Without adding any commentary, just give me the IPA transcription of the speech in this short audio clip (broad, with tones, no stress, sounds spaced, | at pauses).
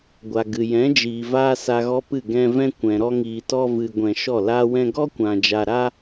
ɡʷ a˨ ɡ ɨ˨ j ɛ̃˨˦ d͡ʒ iː˨ v aː˦ s a˧ ɣ ɔ˦ p ɨ˦˨ ɡ ɛ̃˧ v ɛ̃˦ kʷ ɛ̃˨ ɾ ɔ˧ ŋ iː˨ t ɔ˧ v ɨ˨ ɡʷ ɛ̃˨ ʃ ɔ˦˨ l aː˦ w ɛ̃˦ ɡ ɔ˦ kʷ ã˨ d͡ʒ a˨ ɾ a˦